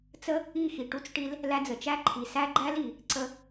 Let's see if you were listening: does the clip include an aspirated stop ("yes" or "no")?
yes